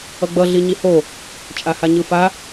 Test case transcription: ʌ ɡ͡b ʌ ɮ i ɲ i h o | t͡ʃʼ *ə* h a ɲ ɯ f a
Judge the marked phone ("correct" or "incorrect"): incorrect